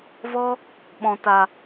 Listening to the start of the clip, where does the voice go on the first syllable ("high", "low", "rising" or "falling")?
high